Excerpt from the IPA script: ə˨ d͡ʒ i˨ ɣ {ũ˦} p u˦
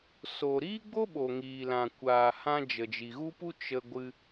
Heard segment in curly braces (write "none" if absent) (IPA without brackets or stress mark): u˦